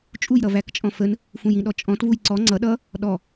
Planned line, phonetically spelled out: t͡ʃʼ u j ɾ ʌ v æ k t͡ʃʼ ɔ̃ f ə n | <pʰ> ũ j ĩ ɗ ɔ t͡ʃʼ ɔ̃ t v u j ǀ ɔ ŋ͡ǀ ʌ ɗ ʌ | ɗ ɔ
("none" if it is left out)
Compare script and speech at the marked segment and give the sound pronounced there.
f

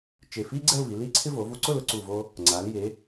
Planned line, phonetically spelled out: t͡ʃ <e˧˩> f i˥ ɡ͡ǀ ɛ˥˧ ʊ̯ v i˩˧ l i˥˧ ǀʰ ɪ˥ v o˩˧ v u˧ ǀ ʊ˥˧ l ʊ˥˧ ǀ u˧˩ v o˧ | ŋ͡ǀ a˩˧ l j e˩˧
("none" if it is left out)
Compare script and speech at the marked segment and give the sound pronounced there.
e˧˩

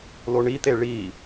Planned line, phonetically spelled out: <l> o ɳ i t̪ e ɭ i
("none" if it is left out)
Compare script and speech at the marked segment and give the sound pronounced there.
l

